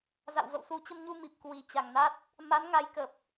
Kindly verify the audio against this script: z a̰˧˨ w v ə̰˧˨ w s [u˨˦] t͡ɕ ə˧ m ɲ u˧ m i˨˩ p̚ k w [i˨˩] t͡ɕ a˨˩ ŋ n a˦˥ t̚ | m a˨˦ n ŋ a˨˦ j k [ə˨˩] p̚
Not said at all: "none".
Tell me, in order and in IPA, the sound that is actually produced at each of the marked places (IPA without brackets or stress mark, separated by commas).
u˨˦, i˨˩, ə˨˩